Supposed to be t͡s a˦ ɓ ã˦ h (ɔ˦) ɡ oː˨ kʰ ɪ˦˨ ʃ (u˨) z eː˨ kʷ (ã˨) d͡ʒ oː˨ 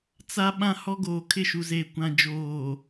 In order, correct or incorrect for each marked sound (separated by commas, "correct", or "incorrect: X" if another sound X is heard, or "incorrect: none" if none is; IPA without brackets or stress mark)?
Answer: correct, correct, correct